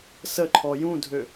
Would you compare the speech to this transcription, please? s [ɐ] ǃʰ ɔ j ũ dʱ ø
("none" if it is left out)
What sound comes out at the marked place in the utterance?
ə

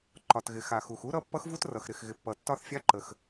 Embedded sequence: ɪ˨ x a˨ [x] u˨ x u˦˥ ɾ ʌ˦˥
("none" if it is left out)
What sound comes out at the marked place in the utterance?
x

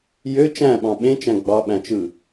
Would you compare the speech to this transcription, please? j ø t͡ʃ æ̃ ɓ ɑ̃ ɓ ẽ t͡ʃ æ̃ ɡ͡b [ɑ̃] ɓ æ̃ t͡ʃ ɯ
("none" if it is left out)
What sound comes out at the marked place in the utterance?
ɑ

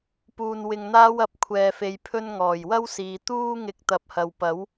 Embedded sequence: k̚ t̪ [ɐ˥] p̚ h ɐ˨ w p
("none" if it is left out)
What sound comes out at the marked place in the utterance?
ɐ˨˥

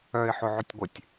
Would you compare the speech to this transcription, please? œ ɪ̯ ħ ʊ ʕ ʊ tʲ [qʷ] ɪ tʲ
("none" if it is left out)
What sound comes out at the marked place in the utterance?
ɡʷ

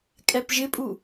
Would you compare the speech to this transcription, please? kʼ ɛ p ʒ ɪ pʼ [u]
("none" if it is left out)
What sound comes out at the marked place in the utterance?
u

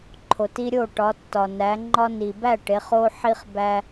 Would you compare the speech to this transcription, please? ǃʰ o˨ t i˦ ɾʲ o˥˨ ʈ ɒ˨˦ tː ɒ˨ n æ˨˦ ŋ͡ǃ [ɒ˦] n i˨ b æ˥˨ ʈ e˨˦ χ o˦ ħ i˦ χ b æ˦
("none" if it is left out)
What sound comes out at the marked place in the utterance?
ɒ˦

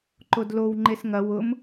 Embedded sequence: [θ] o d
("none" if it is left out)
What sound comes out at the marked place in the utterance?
ǃ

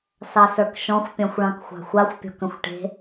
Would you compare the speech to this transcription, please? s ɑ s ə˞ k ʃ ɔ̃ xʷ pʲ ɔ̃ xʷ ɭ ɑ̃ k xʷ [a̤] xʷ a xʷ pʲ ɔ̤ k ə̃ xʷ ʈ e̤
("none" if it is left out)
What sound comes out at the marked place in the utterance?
ɑ̤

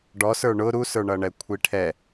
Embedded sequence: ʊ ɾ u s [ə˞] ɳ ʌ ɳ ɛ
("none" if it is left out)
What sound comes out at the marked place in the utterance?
ə˞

